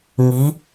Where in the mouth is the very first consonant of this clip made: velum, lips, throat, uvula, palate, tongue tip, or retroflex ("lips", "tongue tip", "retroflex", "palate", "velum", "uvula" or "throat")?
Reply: velum